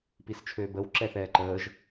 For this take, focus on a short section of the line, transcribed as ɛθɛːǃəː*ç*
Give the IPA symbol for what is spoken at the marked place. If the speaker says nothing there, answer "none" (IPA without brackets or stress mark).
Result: ʒ